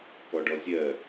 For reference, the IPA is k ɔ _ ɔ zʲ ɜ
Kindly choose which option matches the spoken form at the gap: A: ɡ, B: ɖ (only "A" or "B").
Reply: B